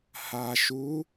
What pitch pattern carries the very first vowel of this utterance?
low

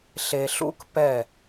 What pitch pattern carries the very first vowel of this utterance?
low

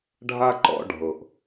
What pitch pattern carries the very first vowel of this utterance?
high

